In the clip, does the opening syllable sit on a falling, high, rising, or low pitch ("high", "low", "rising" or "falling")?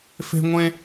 high